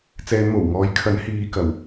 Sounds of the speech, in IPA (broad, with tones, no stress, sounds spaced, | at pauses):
t͡s ɛː˨˧ n m o˨˩ w ŋ ɔː˨˥ j kʰ ɐ˨˥ n h iː˨ k ɐ˨˩ w